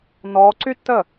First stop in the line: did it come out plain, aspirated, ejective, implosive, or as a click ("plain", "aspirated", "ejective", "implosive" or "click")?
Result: click